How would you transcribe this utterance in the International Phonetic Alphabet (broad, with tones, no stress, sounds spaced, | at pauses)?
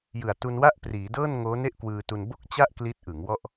j ɯ˨˩ a̯ t u˧ n w a˥˩ ʔ p r iː˩˦ d ɤː˥˩ n ŋ oː˦˥ n e˥˩ ʔ k w ɯː˧ t u˧ n b o˥˩ k̚ t͡ɕ a˥˩ ʔ k l i˦˥ t̚ ʔ ɯ˩˦ ŋ w ɔ˥˩ ʔ